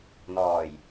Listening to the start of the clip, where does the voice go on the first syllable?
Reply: low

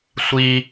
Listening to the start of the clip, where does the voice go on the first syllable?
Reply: high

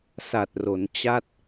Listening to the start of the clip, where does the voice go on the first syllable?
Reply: low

